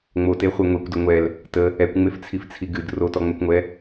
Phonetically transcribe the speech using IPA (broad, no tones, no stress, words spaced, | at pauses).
ŋ͡moteχʷe ŋʷekʷdə ŋʷɛl | tə | ɛkʷŋ͡meft͡sʰift͡sʰi ɡɨd rotɔŋ͡mɛkʷŋʷɛ